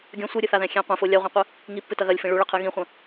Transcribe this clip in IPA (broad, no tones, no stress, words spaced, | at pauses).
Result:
ɡʲɐ̃ sʷiɾʲɨθaðɛ̃ xʲẽ qʷɛ̃fo lʲaʁʷĩqʷɨ | ŋipːɨtɐ ɣɐlʲfĩ ɭuɭɐqʰɨ ɣĩχʷɐ̃